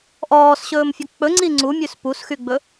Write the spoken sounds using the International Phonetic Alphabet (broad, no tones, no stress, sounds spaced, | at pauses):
ʔ ɔː s ɕ ɵː m fʲ ɵ k͡p ɵ ŋ͡ǀ i ŋ͡ǀ u mʲ ʉ s p u s x y ɡ͡b ɵ